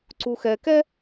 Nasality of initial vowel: oral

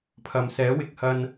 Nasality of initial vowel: oral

